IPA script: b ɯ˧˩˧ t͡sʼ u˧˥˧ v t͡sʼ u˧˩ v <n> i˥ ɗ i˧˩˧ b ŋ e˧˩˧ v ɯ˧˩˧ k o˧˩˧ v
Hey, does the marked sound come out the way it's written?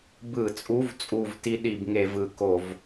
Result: no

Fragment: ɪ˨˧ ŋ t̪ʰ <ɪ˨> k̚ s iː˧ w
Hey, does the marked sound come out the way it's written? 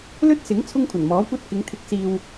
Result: no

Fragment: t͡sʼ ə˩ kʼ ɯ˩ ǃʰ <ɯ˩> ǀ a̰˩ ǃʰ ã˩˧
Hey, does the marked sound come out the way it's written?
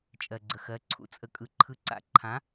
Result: yes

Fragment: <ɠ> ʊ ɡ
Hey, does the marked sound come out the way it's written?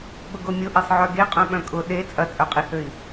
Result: yes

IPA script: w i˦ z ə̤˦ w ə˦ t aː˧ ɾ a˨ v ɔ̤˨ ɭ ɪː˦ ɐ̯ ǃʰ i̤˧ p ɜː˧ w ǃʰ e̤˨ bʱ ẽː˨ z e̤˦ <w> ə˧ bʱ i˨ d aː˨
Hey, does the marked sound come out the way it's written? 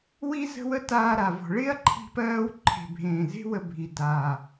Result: yes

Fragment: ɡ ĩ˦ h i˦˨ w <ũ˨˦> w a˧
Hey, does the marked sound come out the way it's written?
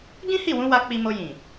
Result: yes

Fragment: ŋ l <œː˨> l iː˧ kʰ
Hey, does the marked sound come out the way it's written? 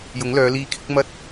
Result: no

